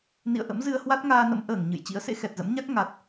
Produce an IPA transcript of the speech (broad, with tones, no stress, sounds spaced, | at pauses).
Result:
n ḭ˧˨ ə̯ ʔ ə̰˧˥ m z ɨ˧ ə̯ h w a˦˥ t̚ ŋ aː˧ n ə̰˧˥ m ʔ əː˧˩ ŋ ɲ ɨ̰˧˨ j t͡ɕ ḭ˧˥ ə̯ s ḛ˧˥ x ɛ˨˩ t̚ z ə̰˧˥ m ɲ a˦˥ k̚ ŋ a˨˩ t̚